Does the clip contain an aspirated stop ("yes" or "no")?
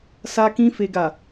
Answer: no